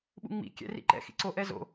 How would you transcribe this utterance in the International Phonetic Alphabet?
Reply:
ɓ ṵ ŋ͡m ḭ kʲ ɛ̰ r ḭ ǃ ɛ̰ x ḭ ǀ o ʔ ɛ z o̰

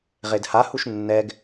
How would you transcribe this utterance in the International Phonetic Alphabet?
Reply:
ʁ e d h a h u ʃ nː ɛ ɡ

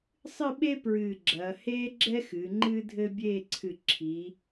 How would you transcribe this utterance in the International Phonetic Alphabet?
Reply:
sˤ ɨ˥˧ ɓ e˥ p ɹ ɨː˧˩ ɡ͡ǁ ɐː˩˧ h eː˥ ɡ͡ǁ ɛ˥ x ɨː˩˧ ŋ͡ǃ ɨː˥ dʱ ɘ˥ bʲ eː˥˧ ǀʰ ɨ˧˩ ǁʰ i˩˧

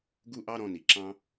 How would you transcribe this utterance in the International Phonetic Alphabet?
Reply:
ɡ u˦ ʔ ɑ˦ ɾ ɔ̃˧ n i˨ ǁ ɑ̃˧

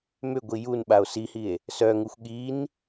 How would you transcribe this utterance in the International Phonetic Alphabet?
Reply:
m ʏ ɡʷ i j u n ɓ a o̯ s i h i e̯ | s œ ŋ u xʷ ɠ i n

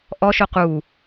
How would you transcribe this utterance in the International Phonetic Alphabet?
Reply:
ʔ ɔ ʃ o q u

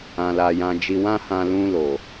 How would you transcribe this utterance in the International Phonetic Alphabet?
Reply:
ã˧ l a˧ j ã˧ d͡ʒ i˧ w ã˦ h ã˧ l ũ˧ l o˨

